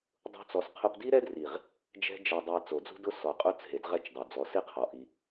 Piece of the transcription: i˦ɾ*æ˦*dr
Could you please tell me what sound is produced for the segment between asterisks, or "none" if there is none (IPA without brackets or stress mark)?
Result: ɛ˦